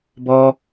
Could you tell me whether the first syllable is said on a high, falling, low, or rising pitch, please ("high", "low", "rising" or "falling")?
high